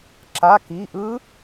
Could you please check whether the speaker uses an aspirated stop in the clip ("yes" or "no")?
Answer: no